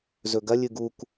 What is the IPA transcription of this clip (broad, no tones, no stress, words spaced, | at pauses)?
zɵɡɐ lʲɨɡuk